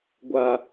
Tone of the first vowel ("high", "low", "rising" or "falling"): low